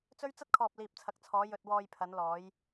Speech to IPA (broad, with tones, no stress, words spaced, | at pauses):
t͡sɵ˥ɥ t͡sɐ˥t̚kʰɔː˨p̚ liː˨p̚t͡sʰɐ˨˥k̚t͡sʰɔː˨˧ jɵ˧t̚wɔː˧jpʰɐ˨˧n lɔː˨˧j